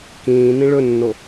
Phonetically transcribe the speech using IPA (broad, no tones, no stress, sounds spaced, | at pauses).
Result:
k ĩː n ĩ ɭ ɵ nː o